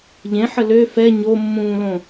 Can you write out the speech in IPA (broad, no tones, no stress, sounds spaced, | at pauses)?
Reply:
ʎ ẽ ħ ə l ø f ɛ ɲ o mː ũː l õ